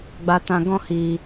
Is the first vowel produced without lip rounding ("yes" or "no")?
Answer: yes